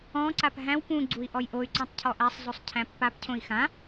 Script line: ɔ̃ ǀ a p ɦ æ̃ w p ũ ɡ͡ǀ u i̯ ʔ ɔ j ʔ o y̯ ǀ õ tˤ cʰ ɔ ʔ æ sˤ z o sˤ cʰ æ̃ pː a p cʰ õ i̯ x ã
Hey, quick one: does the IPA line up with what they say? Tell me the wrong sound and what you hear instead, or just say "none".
none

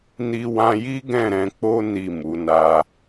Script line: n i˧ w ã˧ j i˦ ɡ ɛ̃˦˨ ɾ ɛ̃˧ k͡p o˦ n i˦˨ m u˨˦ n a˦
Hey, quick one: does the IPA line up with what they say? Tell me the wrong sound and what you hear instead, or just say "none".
none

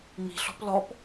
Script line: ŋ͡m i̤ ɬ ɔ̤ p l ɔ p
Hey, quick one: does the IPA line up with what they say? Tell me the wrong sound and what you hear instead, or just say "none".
none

